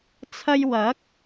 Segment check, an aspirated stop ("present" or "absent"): present